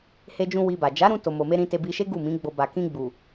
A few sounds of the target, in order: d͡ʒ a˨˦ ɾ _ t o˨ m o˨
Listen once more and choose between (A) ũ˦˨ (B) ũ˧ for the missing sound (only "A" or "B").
B